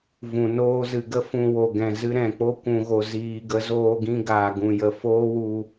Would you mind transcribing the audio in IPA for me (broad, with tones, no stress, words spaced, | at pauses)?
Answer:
vũ˨ noː˧zɨ˨ɡə˦ fũ˨ wo˨ ɡɛ̃˨zɨ˧ ɾɛ̃˨k͡po˦ kʷũ˧ɣo˧ziː˧ ɡə˨˦zoː˧ɡĩ˧ɡaː˨ ɡũ˨jə˨ foː˦wu˧